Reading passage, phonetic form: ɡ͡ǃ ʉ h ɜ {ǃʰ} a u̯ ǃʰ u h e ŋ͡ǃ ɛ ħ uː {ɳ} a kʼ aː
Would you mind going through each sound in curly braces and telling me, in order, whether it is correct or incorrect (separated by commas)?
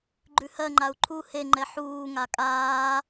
incorrect, incorrect